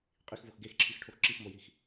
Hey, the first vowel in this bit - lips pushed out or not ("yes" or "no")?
no